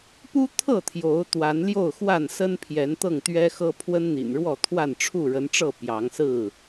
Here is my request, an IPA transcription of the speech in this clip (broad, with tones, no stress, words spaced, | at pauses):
pu˦t̪ʰɤ˥˨ t̪ʰjo˨˦ʊ̯ t̪wa˨˦n ljo˥˨ʊ̯ xwa˥˨nsə˦npʰjɛ˨˦n t̪ɤ˥˨ŋt̪ɥɛ˦xɤ˦ pʰwə˦nn̪ḭ˨˩nɻwɔ˥˨t̪ʰwa˥˨n ʈ͡ʂʰu˥˨ɻə˨˦nʈ͡ʂɤ˥˨ pjɑ˨˦ŋsɹ̩˥˨